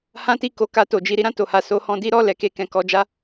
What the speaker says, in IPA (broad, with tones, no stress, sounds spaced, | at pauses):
h ã˦ t i˦˨ k o˧ k a˧ t o˨ d͡ʒ i˨˦ ɾ i˦ ɾ ã˦˨ t o˨ h a˨ s o˨˦ h ɔ̃˧ d i˦ ɾ ɔ˦˨ l ɛ˨ k e˧ k ɛ̃˨ k ɔ˧ d͡ʒ a˦